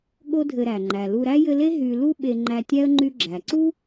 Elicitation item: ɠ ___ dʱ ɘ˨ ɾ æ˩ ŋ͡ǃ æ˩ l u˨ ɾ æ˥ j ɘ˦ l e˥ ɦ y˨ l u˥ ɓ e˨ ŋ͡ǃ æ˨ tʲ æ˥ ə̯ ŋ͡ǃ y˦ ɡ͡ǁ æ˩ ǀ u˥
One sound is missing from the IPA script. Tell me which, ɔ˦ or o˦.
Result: o˦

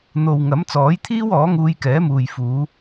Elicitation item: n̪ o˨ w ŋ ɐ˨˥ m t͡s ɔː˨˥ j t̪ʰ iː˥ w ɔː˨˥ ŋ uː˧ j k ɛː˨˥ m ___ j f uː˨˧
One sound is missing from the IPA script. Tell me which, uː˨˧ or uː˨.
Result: uː˨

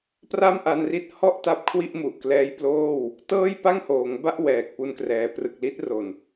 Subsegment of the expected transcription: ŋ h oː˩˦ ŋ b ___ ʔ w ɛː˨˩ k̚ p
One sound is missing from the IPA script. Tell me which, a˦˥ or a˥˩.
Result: a˥˩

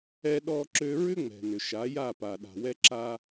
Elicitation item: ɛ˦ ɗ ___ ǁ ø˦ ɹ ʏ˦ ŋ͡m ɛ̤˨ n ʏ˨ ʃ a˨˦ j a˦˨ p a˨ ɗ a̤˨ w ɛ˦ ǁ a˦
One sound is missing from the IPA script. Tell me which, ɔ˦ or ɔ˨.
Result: ɔ˦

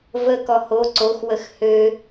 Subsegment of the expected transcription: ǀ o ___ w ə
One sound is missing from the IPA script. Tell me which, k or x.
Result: x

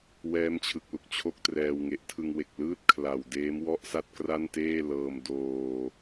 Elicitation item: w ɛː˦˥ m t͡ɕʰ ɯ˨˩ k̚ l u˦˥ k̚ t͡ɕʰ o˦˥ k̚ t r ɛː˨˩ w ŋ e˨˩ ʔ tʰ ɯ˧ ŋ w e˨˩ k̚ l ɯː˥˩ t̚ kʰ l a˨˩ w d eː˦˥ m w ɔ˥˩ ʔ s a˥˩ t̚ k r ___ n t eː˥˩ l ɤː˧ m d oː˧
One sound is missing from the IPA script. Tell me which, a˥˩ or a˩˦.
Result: a˥˩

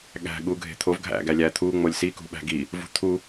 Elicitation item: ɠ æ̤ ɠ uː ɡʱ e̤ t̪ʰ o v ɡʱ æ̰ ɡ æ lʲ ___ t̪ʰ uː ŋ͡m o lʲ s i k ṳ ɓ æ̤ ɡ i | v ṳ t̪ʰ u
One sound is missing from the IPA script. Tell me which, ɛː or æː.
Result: æː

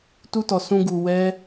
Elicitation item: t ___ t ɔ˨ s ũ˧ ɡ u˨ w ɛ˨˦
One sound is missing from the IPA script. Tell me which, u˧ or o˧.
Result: u˧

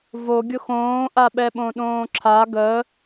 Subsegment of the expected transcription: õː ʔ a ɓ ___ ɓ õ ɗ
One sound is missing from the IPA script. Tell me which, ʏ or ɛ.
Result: ɛ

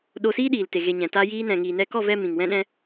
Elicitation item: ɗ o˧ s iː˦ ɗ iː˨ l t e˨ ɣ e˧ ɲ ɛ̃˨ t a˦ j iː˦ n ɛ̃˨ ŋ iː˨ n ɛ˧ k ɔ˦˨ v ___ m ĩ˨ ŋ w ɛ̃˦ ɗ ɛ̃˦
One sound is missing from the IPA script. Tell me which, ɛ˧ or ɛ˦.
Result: ɛ˧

